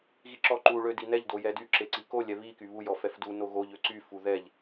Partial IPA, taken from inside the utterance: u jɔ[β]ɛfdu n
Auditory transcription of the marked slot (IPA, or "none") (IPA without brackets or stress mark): f